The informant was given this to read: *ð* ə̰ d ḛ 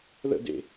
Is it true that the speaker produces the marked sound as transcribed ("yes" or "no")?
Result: yes